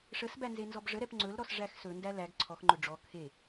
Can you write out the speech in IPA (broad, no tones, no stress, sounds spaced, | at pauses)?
ʂ ə s b æ n z e n z ɔ b ʐ ə ɾ ɛ p ŋ͡ǀ ɵ l ɾ ɔ s ʐ æ x s ɵ n d æ l æ ɡ ǀʰ ɔ x ŋ͡ǃ ɵ ɖ͡ʐ ɔ kʰ e